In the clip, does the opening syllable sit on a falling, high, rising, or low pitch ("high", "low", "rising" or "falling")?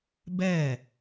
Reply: falling